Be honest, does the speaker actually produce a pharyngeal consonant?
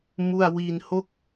no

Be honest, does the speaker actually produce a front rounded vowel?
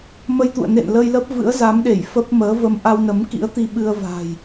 no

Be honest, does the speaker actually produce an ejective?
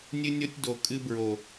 yes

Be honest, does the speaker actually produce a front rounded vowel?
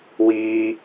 no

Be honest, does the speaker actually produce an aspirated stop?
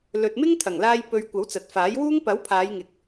yes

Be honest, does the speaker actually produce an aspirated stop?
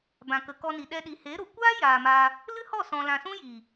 no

